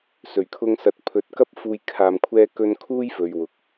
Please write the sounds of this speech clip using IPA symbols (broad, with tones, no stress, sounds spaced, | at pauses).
s ɵ˨˩ ɥ kʰ ʊ˧ ŋ s ɐ˨ t̚ pʰ ɵ˨˥ t̚ k ɐ˥ p̚ f uː˧ j kʰ aː˧ m kʷʰ ɛː˥ k ɵ˥ n kʰ uː˥ j f ɵ˨ ɥ w ʊ˨ k̚